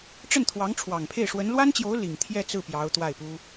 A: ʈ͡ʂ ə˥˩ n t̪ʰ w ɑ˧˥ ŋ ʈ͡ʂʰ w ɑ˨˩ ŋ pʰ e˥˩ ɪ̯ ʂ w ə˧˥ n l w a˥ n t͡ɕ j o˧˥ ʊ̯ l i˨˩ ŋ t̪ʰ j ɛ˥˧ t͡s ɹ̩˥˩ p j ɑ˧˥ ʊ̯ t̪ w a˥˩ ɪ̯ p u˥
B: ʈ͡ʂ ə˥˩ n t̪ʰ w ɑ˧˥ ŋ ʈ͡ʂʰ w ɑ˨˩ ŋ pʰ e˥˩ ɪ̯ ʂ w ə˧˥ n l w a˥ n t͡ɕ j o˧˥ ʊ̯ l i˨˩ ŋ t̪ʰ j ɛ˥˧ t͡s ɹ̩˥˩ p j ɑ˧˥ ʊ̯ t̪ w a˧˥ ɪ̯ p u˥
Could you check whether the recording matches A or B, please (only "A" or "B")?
A